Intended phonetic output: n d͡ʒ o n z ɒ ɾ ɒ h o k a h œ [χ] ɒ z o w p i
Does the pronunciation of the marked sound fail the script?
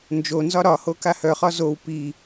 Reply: no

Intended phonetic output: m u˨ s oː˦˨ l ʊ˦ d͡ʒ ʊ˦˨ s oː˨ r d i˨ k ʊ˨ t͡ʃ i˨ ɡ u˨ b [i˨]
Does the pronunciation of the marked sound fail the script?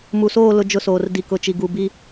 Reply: yes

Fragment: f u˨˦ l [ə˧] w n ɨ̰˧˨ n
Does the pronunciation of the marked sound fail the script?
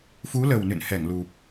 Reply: yes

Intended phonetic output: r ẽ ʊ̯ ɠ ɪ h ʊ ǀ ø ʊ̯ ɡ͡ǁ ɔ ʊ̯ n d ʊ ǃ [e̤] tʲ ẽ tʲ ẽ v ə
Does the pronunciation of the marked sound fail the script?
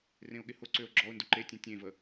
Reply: yes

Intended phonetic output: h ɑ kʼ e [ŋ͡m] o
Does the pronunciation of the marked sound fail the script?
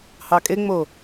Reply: no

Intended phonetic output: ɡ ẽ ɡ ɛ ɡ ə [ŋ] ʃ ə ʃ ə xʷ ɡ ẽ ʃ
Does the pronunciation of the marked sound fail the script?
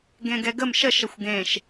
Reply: yes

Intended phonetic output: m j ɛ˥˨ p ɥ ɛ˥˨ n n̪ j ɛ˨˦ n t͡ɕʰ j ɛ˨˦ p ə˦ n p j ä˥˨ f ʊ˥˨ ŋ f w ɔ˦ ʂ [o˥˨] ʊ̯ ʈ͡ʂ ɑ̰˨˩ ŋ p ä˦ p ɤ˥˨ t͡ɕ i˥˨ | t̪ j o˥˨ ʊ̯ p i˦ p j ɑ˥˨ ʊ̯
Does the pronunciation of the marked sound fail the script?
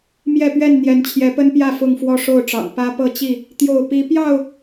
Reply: no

